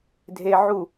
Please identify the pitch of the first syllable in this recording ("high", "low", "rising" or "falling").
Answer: low